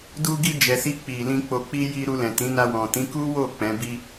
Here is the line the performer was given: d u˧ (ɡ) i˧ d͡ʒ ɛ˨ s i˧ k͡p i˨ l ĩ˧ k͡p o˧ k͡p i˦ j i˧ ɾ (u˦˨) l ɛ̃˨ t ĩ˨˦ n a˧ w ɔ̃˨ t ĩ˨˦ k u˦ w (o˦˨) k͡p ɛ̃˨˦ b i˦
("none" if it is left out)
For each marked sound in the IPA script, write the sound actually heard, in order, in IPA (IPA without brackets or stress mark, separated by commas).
ɡ, u˧, o˦˨